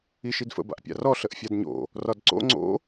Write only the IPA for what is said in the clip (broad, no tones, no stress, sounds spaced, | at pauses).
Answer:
i ʃ i d f ə̰ b a̰ ʔ pʲ a̰ r ɔ ɬ ə ʔ fʲ a d ɲ o̰ | r ɒ d ǀ o̰ ŋ͡ǀ o̰